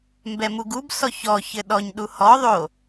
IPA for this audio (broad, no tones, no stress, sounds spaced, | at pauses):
m b ɛ m u ɡ u b s ɔ ç ɔ ç ɘ ɗ ɔ ɲ ɗ u h ɔ ðˤ o